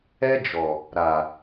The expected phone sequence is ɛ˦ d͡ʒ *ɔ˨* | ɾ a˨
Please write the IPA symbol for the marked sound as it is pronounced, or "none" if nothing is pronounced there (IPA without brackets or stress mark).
ɔ˨